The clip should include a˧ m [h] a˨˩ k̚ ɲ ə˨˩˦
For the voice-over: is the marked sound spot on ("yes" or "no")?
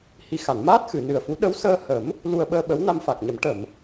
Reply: no